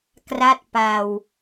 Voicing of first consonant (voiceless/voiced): voiceless